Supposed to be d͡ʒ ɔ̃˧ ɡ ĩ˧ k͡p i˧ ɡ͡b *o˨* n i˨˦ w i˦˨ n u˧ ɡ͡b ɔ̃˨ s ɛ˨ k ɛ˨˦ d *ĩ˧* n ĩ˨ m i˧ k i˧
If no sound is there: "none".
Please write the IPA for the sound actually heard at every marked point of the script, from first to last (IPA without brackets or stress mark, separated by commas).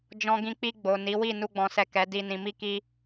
o˨, i˧